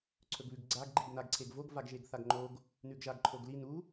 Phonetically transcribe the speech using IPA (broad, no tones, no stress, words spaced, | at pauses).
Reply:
ǀʰɵɡβʉɡɡ͡ǀaɡ ɡ͡ǃiɡnaɡǀʰeɡvoɡ vaɡʒeɡθaɡŋ͡ǃoɡ | nʉɡʒaɡǃʰoɡli nu